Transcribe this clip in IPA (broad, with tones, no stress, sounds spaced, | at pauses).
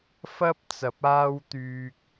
f ɐ˥ p̚ t͡s ɐ˨˥ p̚ aː˥ w t̪ yː˧ k̚